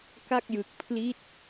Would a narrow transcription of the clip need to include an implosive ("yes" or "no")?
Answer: no